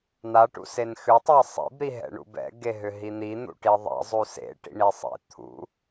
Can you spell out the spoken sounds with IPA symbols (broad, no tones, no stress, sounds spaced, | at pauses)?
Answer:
n̪ a ʈ ṵ s e n x ʏ tˤ a sˤ ḭ b ɾ i ɦ ɛ̰ ɳ ṵ b ɛ̰ ɡ e ɦ ʏ ɦ i n̪ i n̪ ṵ ʈ i ðˤ ɛ̰ zˤ u s ḛ ʈ ḭ ɳ i sˤ ḛ t̪ʰ ṵ